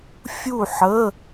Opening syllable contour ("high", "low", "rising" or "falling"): falling